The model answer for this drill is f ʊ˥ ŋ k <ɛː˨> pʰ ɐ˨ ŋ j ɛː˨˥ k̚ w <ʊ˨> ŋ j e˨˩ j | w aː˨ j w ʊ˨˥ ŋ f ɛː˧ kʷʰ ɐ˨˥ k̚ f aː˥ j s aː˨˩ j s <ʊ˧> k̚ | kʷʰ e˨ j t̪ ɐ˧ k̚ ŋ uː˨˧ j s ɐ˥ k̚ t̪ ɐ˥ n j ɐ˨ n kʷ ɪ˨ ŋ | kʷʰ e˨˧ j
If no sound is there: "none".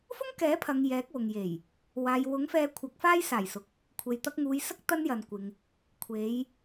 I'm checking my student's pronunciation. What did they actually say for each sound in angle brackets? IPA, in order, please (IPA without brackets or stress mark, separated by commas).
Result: ɛː˨˥, ʊ˨, ʊ˨